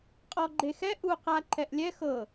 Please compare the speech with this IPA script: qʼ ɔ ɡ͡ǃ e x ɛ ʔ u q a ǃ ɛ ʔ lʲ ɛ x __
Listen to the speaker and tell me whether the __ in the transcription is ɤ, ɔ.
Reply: ɤ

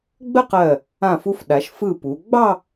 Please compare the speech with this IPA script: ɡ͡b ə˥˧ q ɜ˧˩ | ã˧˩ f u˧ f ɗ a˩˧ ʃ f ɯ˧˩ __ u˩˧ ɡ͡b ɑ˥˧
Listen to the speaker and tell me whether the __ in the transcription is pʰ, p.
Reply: p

